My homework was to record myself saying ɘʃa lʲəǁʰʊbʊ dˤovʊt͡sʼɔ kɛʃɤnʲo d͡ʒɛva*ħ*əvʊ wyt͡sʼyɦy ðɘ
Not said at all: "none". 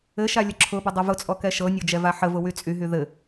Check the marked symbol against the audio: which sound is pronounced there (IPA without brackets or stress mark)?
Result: ħ